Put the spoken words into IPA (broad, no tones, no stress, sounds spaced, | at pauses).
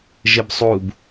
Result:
ʒ ɘ b sˤ u b